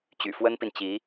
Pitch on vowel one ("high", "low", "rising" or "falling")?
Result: low